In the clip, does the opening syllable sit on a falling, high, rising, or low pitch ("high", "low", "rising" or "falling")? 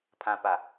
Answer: low